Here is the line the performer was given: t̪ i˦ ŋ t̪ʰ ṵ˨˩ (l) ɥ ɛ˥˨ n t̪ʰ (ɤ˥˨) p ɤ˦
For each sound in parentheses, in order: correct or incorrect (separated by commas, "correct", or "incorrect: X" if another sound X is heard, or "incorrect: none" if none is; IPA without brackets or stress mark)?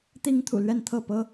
correct, correct